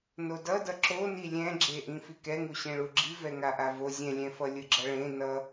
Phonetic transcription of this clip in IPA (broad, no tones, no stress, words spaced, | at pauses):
nodʌdʌ ǁoni lʲɛ̃ɡ͡ǁeʔĩ fikɛŋu ɕẽɭuɡ͡ǁi vɛŋaʔavo zʲɛ̃lʲɛ̃fʌ lʲɯɡ͡ǁʌɭẽ nʌ